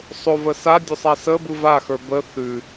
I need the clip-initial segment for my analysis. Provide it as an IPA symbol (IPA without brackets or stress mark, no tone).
sˤ